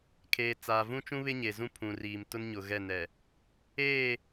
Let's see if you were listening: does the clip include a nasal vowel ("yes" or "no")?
yes